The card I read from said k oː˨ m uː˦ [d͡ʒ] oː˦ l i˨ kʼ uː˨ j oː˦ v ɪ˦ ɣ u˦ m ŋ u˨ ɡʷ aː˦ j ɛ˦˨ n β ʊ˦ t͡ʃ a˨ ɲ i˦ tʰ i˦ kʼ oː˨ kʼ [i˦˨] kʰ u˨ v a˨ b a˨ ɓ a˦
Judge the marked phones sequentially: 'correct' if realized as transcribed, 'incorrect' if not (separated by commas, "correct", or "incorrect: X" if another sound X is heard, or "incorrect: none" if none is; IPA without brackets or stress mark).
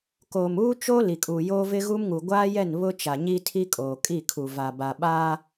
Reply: incorrect: t͡ʃ, correct